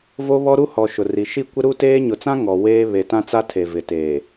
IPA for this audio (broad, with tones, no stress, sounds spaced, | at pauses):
v o˦ β ɔ˦ ɾ u˦ h ɔ˨ ʃ ʊ˨ r i˨ ʃ i˦ kʷ ɪ˦ ɾ u˦ t eː˦ ɲ ʊ˨ t͡s ã˦ ŋ ɔ˨ w eː˦ β e˨ t ã˦ t͡s a˦ tʰ e˨ v ɪ˨ t eː˨